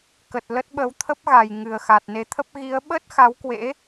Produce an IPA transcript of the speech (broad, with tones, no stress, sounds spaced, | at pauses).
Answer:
k ə˨˩ t̚ l ə˦˥ t̚ ɓ ə˨˦ w t̪ʰ ə˦˥ p̚ ɣ a˨˩ j ŋ ɨ˨˩ ə̯ x a˨˩ t̚ n e˨˦ t̪ʰ ə˦˥ p̚ ɣ i˨˦ ə̯ ɓ ə˦˥ t̚ x a˨˦ w k w ḛ˧˥